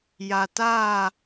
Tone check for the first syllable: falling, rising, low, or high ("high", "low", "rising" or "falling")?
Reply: low